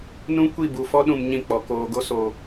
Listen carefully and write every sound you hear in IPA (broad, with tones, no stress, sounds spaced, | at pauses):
n ũ˦ kʷ i˦˨ b u˨ f ɔ˦ ɗ ũ˨ m ɲ ĩ˦˨ k͡p ɔ˨ k oː˨ ɡ o˦ s o˨